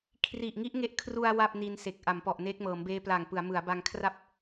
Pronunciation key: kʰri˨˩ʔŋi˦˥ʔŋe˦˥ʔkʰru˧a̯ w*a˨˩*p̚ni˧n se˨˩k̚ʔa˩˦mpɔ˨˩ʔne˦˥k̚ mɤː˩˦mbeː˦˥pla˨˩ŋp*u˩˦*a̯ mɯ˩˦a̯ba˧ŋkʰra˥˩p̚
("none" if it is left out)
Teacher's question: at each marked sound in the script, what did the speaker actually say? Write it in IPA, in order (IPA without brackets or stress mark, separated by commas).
a˥˩, ɯ˩˦